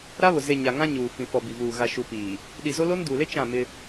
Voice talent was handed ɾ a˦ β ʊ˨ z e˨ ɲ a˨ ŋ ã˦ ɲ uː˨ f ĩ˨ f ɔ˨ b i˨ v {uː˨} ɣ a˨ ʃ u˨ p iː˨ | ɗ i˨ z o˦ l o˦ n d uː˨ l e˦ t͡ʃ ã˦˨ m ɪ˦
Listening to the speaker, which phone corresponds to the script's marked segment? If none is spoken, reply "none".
uː˨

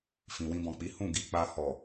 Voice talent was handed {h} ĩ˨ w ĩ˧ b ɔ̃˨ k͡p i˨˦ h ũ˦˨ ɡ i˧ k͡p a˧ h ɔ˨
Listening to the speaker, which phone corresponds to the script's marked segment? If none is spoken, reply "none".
f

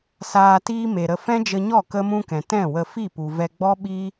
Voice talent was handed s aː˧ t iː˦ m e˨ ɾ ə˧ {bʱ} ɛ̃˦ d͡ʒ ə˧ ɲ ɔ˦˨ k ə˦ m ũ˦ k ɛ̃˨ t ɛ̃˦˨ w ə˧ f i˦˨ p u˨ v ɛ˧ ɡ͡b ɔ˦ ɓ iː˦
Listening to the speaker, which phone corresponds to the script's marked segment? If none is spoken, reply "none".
f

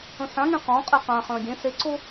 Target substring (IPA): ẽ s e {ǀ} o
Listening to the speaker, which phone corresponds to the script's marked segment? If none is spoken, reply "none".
ǀ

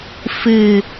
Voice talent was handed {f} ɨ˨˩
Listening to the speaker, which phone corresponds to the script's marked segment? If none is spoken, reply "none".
f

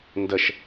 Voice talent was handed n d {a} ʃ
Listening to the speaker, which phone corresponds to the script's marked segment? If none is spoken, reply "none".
ə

